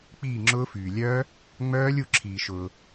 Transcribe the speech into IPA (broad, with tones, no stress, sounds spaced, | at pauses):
k͡p iː˥˩ ŋ͡ǁ ʊː˦˥ f yː˩ lʲ œː˦˥ | ŋ͡m œː˦˥ lʲ u˥˩ ǁʰ iː˩ ʃ ʊː˩